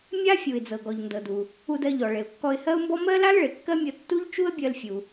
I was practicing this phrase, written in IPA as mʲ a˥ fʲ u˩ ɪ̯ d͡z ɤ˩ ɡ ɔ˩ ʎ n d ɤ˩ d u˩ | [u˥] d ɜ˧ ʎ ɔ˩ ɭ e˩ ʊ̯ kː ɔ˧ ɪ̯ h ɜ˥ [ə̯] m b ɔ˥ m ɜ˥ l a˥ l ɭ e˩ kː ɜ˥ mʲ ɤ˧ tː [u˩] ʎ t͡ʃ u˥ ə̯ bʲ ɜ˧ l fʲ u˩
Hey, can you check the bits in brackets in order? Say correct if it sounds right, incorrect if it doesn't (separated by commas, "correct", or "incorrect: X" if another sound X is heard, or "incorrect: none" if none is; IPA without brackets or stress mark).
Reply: incorrect: u˧, incorrect: ʊ̯, incorrect: u˥